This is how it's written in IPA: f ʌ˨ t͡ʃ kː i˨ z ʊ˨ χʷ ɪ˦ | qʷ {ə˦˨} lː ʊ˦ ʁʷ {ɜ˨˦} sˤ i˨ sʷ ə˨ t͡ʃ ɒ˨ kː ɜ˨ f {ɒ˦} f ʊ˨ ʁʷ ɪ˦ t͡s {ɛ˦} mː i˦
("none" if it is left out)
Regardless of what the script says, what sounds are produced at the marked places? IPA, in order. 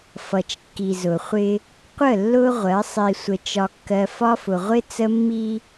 ə˦˨, ɜ˨˦, ɒ˦, ə˦

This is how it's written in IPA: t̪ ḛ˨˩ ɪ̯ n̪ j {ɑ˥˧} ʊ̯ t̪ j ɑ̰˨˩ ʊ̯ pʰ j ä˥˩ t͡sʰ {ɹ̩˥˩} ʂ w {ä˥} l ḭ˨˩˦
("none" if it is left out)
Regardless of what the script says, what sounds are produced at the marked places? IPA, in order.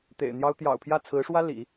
ɑ˥, ɹ̩˧˥, ä˥

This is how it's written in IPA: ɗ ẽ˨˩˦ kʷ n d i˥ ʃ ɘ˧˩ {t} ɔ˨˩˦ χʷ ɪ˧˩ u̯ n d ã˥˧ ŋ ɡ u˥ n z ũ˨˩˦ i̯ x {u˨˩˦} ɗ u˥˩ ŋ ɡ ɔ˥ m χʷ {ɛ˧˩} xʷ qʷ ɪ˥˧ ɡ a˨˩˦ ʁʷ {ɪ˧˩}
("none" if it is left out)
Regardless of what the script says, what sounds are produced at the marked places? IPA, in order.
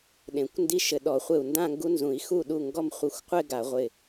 ɗ, u˥˩, ɪ˧˩, ɪ˧˩

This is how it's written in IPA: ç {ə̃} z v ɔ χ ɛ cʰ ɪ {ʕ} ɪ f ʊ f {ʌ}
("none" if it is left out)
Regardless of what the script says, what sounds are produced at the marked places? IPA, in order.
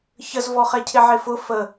ə, ʕ, ə

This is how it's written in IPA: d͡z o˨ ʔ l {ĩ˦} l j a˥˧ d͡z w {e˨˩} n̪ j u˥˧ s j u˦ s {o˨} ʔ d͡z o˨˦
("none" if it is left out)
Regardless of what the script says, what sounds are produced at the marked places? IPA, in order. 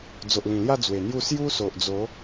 ĩ˨˩, e˨˩, o˨

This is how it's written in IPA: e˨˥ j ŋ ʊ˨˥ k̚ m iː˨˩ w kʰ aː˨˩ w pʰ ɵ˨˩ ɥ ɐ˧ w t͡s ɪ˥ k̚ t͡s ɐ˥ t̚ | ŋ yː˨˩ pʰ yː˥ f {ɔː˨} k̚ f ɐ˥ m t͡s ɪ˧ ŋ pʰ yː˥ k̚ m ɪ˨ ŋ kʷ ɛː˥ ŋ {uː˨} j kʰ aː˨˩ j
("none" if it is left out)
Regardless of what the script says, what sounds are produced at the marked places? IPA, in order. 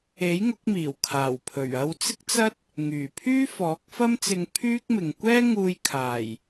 ɔː˨˥, uː˧

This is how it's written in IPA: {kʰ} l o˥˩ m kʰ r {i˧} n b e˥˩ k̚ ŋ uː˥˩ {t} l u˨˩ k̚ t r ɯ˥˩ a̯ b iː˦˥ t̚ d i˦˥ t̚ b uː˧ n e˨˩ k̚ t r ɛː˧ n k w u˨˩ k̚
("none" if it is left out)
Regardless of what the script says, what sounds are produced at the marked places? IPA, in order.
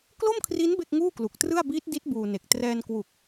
k, i˦˥, k

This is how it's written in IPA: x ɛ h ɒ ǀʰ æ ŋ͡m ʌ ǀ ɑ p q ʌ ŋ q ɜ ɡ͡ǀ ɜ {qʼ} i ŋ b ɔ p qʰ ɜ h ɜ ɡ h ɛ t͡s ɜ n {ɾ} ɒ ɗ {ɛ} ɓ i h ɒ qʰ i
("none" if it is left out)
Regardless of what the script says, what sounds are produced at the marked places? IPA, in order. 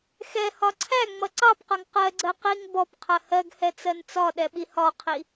q, t͡s, ɛ

